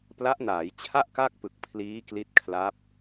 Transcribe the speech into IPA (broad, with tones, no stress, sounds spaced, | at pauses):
p l a˦˥ ʔ n aː˩˦ j t͡ɕʰ a˥˩ ʔ k a˥˩ k̚ p ɯ˨˩ k̚ pʰ l iː˦˥ k l i˦˥ t̚ kʰ l a˦˥ p̚